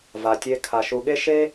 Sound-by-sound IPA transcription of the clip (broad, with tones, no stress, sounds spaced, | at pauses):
v a˩ tʲ e˨ kʰ a˩ ʃ u˨ ɠ e˦ ʃ e˥